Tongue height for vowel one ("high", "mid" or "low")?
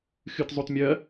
high